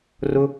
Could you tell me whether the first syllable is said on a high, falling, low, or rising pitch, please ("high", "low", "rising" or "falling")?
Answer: high